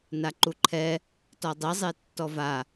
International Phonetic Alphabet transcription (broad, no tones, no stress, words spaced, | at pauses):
naǃuǃʰɛ | tɔdˤizˤe tːɔva